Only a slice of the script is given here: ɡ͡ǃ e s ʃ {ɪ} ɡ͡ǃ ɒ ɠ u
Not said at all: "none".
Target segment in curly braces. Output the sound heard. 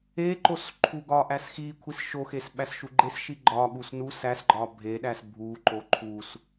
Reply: i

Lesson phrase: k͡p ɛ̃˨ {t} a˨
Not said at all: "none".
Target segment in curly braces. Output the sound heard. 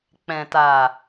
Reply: t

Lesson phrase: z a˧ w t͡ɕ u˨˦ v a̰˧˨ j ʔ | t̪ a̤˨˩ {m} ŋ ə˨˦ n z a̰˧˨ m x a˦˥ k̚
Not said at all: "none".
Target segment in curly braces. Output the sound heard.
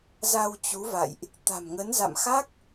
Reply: m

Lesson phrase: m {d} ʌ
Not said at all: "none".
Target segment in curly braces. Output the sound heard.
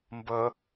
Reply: b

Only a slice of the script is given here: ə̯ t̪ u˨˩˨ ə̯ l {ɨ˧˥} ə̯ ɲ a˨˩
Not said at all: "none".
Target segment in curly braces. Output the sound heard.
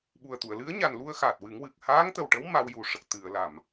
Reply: ɨ˧˥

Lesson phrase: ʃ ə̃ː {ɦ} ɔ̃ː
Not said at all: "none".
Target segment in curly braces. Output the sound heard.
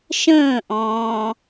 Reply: ʔ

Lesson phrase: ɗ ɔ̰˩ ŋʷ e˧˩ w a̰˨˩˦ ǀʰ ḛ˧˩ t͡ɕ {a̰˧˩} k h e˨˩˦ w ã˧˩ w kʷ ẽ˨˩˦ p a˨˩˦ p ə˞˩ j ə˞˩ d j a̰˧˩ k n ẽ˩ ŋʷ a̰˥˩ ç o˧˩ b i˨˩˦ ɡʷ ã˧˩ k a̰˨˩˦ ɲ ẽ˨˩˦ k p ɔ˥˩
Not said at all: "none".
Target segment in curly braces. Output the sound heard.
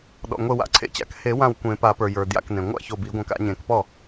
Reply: a̰˧˩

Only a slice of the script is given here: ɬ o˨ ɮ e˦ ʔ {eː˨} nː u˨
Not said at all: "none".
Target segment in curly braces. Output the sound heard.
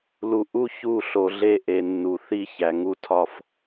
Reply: e˨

